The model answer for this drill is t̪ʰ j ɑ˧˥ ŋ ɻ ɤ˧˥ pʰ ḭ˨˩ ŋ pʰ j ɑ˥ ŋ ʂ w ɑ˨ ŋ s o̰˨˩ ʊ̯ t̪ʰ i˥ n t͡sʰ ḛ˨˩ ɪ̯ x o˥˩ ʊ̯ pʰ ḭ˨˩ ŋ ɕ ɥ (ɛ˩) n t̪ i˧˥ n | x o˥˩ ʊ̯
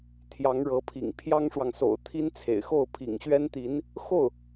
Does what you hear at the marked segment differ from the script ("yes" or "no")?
yes